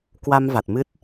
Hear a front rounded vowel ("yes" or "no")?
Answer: no